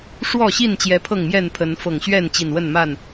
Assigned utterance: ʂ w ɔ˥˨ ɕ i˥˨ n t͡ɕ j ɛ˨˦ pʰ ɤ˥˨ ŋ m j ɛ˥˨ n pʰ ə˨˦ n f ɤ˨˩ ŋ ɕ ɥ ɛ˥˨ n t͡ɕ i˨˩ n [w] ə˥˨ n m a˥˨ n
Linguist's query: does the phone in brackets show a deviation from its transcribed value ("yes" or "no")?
no